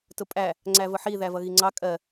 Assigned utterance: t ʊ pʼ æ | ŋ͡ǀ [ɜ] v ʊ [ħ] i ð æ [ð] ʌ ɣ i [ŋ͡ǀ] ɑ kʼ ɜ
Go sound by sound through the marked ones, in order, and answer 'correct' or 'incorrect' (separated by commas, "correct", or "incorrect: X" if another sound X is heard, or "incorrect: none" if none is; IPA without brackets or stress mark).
incorrect: æ, correct, incorrect: v, correct